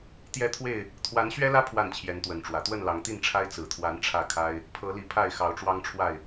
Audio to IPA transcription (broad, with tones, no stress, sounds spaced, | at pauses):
t̪ j ɛ˦ t̪ʰ w e˥˨ ɪ̯ | t̪ʰ w a˨˦ n ɕ ɥ ɛ˦ l ä˦ pʰ w a˥˨ n t͡ɕʰ j ɛ˨˦ n t̪ w ə˨˦ n ʈ͡ʂ w ä˨˩ t̪ w ə˥˨ n l ɑ˨˦ ŋ t̪ i˥˨ n ʈ͡ʂʰ a˦ ɪ̯ t͡s ɹ̩˨˩ t̪ʰ w a˨˦ n ʈ͡ʂʰ ä˥˨ kʰ a˦ ɪ̯ | pʰ ɤ˨˦ l i˨˦ pʰ a˥˨ ɪ̯ x ɑ˨˦ ʊ̯ ʈ͡ʂ w ɑ˦ ŋ ʈ͡ʂʰ w a˥˨ ɪ̯